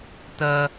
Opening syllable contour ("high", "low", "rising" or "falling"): high